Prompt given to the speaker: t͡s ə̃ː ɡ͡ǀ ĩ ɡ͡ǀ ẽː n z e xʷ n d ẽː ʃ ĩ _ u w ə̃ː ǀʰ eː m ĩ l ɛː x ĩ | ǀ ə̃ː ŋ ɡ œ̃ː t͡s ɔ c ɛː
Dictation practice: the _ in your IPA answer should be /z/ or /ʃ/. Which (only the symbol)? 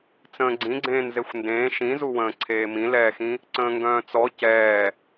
z